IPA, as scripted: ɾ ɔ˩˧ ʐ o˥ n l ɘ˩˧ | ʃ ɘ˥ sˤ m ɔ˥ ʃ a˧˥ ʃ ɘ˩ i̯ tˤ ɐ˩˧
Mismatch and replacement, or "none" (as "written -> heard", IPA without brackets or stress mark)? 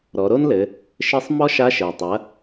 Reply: ʐ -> ɾ